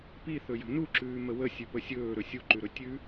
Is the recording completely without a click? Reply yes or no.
no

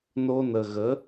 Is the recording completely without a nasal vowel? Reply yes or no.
yes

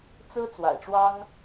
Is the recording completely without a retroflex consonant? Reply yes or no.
no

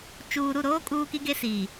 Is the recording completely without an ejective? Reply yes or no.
no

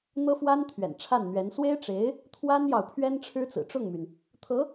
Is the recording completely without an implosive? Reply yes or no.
yes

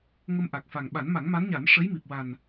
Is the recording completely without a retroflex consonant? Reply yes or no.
no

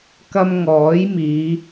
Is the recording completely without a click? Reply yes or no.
yes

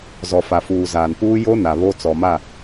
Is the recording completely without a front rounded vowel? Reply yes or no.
yes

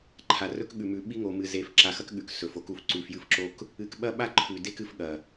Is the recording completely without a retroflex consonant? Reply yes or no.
yes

